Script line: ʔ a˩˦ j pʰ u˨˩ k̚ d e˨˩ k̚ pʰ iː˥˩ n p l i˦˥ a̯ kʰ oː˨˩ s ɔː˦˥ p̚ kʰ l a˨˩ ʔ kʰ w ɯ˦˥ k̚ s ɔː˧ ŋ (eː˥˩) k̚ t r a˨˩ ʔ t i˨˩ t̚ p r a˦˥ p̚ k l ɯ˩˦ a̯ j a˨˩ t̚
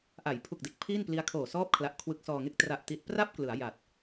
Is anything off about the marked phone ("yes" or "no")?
yes